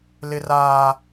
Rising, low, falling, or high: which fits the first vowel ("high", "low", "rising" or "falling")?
high